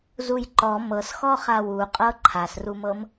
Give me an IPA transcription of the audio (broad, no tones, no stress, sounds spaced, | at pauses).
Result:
z u j ǃ ɔ m ɤ s x ɔ χ a w u qʼ ɤ ǃʰ a s r u m ɤ m